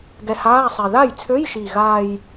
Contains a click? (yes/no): no